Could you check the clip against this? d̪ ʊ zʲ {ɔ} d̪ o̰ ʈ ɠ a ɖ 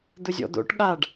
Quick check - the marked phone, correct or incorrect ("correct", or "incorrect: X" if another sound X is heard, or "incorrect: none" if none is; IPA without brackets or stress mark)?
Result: incorrect: ɔ̰